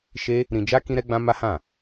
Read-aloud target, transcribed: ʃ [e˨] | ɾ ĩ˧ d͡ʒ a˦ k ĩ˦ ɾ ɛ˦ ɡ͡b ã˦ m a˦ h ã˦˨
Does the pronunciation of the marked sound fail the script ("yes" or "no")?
yes